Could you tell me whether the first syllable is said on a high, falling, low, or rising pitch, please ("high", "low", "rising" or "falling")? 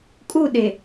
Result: falling